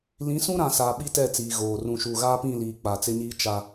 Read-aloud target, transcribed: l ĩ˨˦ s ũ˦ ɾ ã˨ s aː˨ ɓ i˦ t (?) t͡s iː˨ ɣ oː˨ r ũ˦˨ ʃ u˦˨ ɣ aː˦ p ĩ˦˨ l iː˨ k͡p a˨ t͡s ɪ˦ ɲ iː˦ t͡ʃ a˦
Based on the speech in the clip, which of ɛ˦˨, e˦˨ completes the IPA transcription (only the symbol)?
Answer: ɛ˦˨